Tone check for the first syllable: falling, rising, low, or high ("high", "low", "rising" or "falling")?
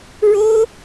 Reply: high